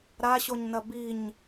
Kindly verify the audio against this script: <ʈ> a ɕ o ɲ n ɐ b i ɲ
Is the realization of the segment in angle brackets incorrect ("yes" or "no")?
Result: yes